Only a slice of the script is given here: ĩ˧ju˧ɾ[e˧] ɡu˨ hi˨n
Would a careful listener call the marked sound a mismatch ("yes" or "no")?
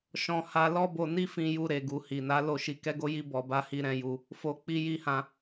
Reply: yes